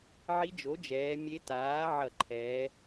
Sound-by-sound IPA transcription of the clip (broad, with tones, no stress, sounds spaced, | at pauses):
ʕ i˧˥ d͡ʒ o˩˥ d͡ʒ ɛː˩˧ mʲ e˧˥ t aː˩˥ ʕ ʌ˧˩˧ ǃʰ ɛː˩˧